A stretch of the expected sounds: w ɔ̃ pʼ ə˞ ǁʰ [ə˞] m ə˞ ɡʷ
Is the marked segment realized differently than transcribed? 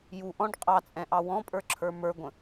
no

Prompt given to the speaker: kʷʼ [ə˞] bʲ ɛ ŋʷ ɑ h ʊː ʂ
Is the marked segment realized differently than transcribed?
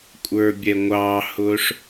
no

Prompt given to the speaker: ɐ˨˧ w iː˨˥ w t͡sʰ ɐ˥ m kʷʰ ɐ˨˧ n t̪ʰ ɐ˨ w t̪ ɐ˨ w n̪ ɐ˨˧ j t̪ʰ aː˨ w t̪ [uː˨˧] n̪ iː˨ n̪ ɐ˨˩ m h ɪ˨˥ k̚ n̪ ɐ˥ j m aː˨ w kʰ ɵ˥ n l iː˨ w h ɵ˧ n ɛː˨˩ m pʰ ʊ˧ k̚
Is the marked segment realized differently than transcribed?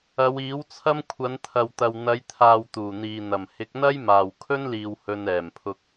yes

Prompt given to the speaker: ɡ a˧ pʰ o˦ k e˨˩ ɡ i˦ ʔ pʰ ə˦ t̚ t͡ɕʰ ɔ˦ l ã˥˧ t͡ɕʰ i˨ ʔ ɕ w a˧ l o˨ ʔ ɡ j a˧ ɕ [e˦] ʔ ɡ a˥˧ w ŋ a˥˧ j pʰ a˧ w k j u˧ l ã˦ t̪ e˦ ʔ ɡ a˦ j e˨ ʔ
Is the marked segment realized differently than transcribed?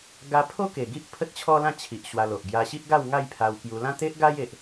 yes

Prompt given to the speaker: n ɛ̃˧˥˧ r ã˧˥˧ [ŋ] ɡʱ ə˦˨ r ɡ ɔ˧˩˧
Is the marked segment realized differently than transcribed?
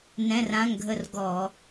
no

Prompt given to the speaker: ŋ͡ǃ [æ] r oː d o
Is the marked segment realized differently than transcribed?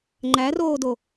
no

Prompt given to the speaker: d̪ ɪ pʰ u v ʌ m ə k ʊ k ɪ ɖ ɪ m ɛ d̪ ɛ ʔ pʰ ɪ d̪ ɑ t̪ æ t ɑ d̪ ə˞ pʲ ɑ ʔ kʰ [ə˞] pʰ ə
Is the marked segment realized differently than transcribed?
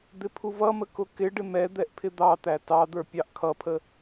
yes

